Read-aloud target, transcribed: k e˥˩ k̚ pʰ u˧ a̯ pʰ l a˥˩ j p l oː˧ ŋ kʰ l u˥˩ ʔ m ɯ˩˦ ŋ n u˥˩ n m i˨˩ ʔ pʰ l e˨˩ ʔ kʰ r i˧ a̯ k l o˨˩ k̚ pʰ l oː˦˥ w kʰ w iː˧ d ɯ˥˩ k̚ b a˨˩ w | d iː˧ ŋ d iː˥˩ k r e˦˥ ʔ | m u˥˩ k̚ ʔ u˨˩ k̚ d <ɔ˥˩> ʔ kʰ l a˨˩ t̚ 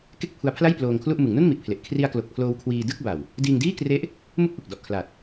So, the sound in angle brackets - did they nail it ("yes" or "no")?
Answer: no